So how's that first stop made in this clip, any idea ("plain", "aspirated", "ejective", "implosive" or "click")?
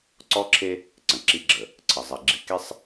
click